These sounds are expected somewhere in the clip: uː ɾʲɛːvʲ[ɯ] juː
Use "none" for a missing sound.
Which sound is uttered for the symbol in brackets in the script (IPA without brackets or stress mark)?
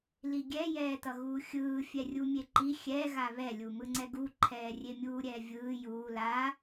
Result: ɯː